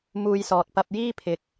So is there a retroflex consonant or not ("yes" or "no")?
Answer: no